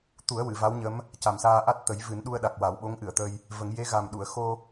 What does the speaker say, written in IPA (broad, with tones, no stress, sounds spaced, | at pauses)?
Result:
t̪ u˨˩˦ ə̯ w ɨ˨˩˨ v a˧˥ w ɲ ə˧˥ m | c a˨˩ m s aː˧ ʔ a˦˥ t̚ t̪ ə˨˩˦ j v ɨ˨˩˦ n ɗ u˧ ə̯ ɗ a˨˩ k̚ w a˨˩˦ w ɓ o˧˥ ŋ ʔ ɨ˨˩˨ ə̯ t̪ ə˧ j | v ə˨˩˦ ŋ j e˧˥ ɣ a˨˩ m ɗ u˨˩˨ ə̯ x o˧